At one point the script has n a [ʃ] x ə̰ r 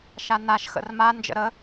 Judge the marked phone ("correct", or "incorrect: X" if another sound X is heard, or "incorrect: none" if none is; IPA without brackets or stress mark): correct